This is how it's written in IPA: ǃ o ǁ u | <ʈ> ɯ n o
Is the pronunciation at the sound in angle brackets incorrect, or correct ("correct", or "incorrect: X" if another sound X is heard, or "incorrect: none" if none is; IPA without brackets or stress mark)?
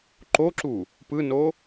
incorrect: p